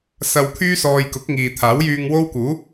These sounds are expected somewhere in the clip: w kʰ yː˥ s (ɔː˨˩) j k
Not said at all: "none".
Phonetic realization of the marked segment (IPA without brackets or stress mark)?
ɔː˧